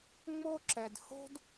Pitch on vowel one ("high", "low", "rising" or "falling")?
high